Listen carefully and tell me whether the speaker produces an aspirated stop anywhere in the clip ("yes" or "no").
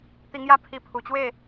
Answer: yes